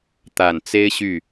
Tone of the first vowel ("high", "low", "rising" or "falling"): low